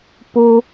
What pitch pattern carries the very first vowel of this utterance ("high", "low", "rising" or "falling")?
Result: high